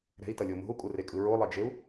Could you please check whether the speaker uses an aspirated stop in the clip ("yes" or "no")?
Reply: no